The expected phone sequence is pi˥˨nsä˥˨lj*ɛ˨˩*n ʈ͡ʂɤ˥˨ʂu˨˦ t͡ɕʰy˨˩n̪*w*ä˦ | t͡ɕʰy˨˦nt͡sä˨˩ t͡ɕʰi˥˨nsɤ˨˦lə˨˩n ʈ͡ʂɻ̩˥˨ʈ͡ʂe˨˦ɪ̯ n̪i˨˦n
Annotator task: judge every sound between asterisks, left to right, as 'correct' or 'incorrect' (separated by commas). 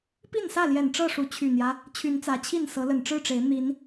correct, incorrect